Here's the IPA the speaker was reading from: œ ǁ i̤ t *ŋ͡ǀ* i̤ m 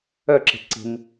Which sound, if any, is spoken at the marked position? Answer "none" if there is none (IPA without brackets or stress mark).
ǀ